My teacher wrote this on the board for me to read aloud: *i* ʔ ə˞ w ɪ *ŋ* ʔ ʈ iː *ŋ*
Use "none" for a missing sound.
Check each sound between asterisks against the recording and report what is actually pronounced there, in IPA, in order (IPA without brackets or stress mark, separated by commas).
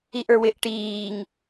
i, none, ŋ